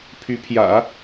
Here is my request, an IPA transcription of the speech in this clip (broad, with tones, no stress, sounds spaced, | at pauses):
pʰ y˧˥ pʰ j ä̰˨˩˦